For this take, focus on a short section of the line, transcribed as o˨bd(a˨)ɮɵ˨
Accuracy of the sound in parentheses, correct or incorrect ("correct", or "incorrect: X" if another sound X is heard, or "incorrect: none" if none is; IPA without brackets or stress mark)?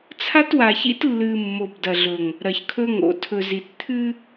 incorrect: ɐ˨